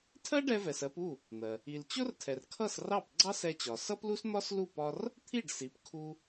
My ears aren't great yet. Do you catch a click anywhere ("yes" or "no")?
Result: yes